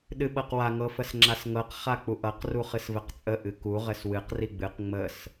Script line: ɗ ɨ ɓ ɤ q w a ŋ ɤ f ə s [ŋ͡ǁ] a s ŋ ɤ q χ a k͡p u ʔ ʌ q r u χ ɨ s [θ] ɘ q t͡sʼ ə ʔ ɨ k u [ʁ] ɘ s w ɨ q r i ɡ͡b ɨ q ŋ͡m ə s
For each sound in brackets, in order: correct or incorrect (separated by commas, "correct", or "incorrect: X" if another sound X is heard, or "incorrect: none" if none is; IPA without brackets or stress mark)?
correct, incorrect: v, correct